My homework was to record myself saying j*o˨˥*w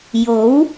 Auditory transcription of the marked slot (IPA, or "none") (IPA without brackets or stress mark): o˨˥